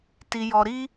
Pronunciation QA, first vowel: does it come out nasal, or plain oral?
oral